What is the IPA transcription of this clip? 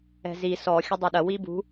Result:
ɛ̤zi sɔ xʲɐdˤoɗɐ wibṳ

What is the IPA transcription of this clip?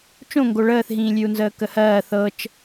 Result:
t͡ʃõŋɡo ɭəːθɦĩːlʲʉu̯nzəː kəhɜː θɤt͡ʃ

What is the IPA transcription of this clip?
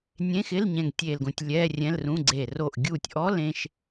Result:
nʲẽ˧˥˧xɪ˧˥˧l ɲɛ̃˧˩ŋtʲeː˧˩lɡõ˧˩tʲ lʲɛː˧˥˧rʲɛ̃˧˥˧lrũ˧˥˧ɡ͡ǀe˧˩ ro˧˩ʔɡʲu˧˩tʲʔɔ˧˥˧l ẽ˧˥˧ʃ

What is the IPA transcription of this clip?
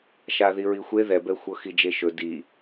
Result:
ʃaðiɹixʷe ðɛbɛxʷɤ xid͡ʒeʃɵ di

